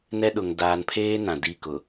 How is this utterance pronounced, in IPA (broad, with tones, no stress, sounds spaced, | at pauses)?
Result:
n ɛ˦ ɗ ʊ˨ ŋ d aː˨ n pʰ eː˦ n ã˨ d i˦˨ k ʊ˨